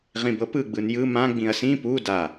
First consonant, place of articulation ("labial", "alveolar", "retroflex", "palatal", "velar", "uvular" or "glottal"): uvular